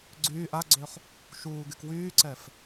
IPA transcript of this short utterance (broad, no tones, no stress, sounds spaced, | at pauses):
ɡ͡ǀ yː ʔ a ɡ͡ǀ ø χ | ʃ uː ɡ y k w yː ǀ ɛ f